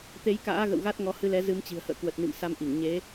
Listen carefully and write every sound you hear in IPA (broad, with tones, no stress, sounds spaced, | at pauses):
t̪ e˨˦ j k a̰ː˧˥ ɣ ə̰˧˨ w ɣ a˦˥ t̚ ŋ ɔ˨˦ h ɨ˧ l ɛ˨˦ z ɨ˨˦ m t͡ɕ i̤˨˩ ə̯ h ə̰ː˧˨ k w ə˨˩ t̚ n ḭ˧˨ m s a˧ m ʔ i˧˩ ŋ ɲ e˨˦